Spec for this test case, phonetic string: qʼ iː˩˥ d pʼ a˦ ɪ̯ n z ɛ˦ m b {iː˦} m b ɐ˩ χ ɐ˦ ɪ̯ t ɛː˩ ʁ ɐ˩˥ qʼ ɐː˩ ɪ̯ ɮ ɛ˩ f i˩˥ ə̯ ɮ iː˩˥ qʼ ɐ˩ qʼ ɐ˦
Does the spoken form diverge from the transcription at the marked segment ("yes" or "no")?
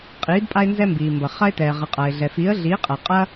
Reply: yes